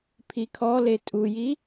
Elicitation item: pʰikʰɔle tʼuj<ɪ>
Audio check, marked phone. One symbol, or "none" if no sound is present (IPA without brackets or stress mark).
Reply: i